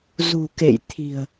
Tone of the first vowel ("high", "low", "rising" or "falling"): low